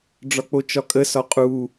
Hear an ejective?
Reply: yes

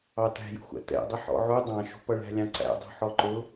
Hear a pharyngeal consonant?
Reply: yes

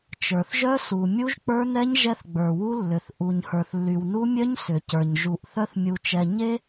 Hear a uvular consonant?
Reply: no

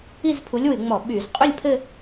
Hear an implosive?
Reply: yes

